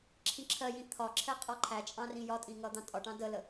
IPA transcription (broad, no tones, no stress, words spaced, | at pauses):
ǁʰĩǁʰɜjĩ t̪ʰɒǁʰɛ qʼɔǃʰæt͡ʃʼɑ̃ rĩjɒtʼĩ ŋʌd̪ɑ̃tʼɒʈɑ̃ dələ